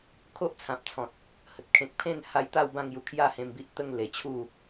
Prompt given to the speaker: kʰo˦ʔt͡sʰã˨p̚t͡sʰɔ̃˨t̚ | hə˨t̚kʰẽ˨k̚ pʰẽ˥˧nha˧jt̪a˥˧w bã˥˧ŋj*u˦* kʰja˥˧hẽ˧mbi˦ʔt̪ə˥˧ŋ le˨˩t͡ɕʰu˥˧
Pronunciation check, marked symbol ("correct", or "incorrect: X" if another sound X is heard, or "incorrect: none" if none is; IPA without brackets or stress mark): incorrect: u˧